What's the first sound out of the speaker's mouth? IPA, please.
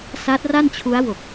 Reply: s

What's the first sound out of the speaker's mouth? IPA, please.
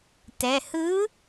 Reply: t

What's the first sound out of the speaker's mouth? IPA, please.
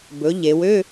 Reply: b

